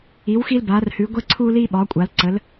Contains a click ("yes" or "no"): yes